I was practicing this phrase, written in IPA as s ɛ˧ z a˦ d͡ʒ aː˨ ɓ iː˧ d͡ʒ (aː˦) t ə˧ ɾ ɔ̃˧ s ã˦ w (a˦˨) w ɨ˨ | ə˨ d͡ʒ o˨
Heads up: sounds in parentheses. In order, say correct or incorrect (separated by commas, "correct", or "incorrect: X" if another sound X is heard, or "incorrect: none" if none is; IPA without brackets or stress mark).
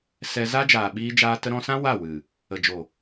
incorrect: aː˧, correct